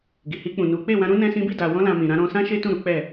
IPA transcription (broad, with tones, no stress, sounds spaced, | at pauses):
ɡ i˨ h i˧ k͡p ũ˨ n u˨˦ k͡p e˦˨ w ã˧ ɾ ũ˦ n ɛ̃˦ s ĩ˦ b i˦˨ d a˨ w ɔ̃˧ l ã˨ m ĩ˨ ɾ ã˨˦ ɾ ɔ̃˧ s ã˦ ʃ e˦ t ũ˦˨ ɾ u˨˦ k͡p ɛ˦˨